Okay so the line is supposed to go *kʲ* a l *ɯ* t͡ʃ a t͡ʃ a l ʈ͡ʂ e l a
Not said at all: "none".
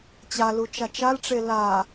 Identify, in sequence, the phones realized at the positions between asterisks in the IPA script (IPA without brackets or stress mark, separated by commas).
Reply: t͡ɕ, u